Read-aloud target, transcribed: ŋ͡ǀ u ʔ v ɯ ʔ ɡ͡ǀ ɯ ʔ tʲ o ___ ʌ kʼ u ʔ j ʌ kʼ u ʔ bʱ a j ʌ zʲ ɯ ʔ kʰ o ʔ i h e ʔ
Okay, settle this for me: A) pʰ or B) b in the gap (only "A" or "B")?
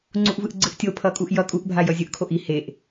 A